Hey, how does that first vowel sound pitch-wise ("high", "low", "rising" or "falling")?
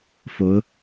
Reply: rising